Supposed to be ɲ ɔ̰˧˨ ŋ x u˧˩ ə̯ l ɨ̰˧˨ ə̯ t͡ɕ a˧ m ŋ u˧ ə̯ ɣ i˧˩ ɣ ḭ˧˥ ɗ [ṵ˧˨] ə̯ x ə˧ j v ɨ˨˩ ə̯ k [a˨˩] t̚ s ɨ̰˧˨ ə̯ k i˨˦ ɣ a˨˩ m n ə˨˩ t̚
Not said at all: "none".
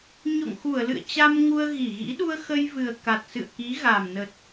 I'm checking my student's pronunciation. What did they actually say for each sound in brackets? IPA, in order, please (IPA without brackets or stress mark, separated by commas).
u˧, a˨˩